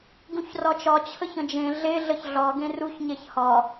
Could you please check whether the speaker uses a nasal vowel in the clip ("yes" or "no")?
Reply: yes